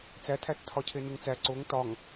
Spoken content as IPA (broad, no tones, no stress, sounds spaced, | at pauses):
t͡s æ tʰ æ t͡s tʰ ɒ cʰ e n u ŋ t͡s æ ǀ o ŋ t ɒ ŋ